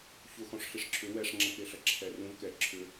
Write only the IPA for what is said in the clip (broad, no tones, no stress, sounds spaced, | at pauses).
ç ʊ x ɔ̃ ʂ ɬ i ʂ ǁʰ ʏ w ɛ ʂ ŋ͡ǁ ɐ k e ɬ ɐ ǁʰ ɛ r ũ v k ɛ ǁʰ ʏ